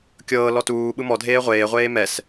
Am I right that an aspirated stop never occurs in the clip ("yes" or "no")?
yes